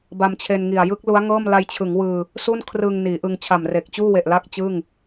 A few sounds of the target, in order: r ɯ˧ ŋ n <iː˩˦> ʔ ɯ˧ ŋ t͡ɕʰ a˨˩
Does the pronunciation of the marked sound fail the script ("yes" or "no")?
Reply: no